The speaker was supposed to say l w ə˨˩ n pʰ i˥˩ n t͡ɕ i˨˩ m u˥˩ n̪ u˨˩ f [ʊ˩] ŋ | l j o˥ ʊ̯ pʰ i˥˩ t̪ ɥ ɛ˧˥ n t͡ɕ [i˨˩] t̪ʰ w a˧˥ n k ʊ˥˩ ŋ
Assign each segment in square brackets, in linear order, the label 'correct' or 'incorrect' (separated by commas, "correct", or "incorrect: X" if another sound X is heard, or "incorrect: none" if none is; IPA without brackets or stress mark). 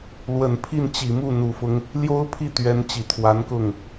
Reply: incorrect: ʊ˦, correct